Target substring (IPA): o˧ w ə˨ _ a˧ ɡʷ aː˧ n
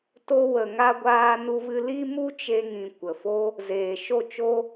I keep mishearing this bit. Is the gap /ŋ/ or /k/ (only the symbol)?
ŋ